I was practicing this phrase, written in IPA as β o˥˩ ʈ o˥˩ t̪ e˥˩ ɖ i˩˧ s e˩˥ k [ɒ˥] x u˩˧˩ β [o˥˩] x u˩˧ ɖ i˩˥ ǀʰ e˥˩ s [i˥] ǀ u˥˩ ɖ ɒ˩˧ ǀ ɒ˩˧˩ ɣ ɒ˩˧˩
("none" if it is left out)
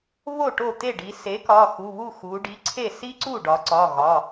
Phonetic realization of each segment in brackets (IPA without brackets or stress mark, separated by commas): ɒ˩˧˩, u˥˩, i˥